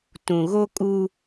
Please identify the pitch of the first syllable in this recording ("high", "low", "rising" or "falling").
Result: low